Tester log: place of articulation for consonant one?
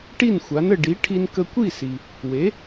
retroflex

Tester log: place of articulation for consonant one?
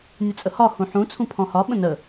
alveolar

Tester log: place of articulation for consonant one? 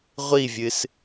uvular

